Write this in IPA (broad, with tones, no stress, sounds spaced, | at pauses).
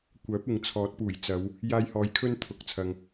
kʷ œː˨˥ p̚ ɪ˨ ŋ t͡sʰ ɔː˨˥ t̚ p uː˨˩ j t͡s ɐ˨˧ w | j aː˧ j h ɔː˨˧ j kʰ ɵ˥ n t̪ʰ ʊ˨˥ k̚ t͡sʰ ɐ˨ ŋ